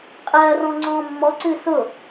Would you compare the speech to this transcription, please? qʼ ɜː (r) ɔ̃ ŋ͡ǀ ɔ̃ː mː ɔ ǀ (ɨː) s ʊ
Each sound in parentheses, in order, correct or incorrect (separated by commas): correct, correct